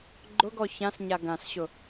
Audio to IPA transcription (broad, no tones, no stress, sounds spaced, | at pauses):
ɡ͡ǃ ʊ ɡ ɔ ç ã s ɲ a ɡ ã s ɕ ʊ